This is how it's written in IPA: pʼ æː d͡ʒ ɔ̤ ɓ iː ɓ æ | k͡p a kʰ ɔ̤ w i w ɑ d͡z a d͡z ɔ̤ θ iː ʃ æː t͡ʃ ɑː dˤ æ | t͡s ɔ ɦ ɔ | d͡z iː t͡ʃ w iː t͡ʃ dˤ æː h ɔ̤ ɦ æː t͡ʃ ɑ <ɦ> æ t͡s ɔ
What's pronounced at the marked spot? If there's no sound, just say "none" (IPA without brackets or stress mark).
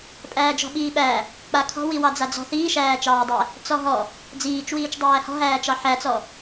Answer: ħ